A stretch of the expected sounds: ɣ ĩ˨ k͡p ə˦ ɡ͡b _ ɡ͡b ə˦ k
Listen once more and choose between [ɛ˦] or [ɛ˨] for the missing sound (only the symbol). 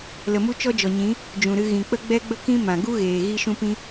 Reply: ɛ˦